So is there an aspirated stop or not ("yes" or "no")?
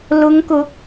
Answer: no